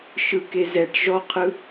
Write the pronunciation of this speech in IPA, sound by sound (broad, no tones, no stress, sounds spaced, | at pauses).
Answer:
ʃ ɯ k e z ɛ ʈ ʒ ɔ qʰ ɯ